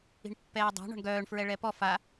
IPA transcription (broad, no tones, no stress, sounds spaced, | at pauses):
i̤ ɳ pː ɛː dˤ a̤ ɳ ɔ̤ ɳ ɡ œː ɳ f ɹ ɛ ɭ ɛ p ɔ f a